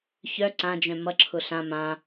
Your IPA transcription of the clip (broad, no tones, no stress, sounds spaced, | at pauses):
ç œ ǀ ã d͡ʒ œ̃ m ʌ ǁʰ ʊ ɬ ã m ã